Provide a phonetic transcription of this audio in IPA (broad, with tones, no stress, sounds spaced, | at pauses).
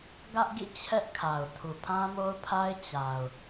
ɡ ä˦ ʔ ɡ ḭ˦˨ t͡ɕʰ ɛ˦ ʔ kʰ a˨ ʊ̯ tʰ u˨ pʰ ã˦ m o˦ ʊ̯ pʰ a˦ ɪ̯ t͡ɕ a˨ ʊ̯